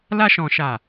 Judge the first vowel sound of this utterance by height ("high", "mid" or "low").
low